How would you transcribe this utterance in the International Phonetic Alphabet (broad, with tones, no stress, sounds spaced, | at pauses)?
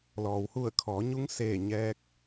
l ɔː˩ w h u˧˩ ə̯ kʰ ɔː˩˧ ɲ u˧˥ ŋ s eː˧˩ ɲ ɛː˧˥ k̚